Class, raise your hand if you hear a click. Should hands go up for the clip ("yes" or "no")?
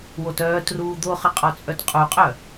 no